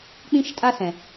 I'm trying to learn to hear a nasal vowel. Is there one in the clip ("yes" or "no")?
yes